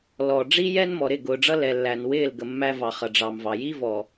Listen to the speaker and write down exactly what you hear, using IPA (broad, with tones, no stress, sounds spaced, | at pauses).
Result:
l ɔ˨ ɖ͡ʐ i˦ j ɛ˦ n m ɔ˨ ɾ ɪ˦˨ ɡ ʊː˨ ɖ͡ʐ ʌ˦ l ɛ˨ lː æ˨ n w ɪː˦˨ l ɡ ə˨ mː æ˦ v ɑ˨ χ ʌ˨ ɖ͡ʐ ɑ˨ m v ɑ˨ j i˦ v ɔ˨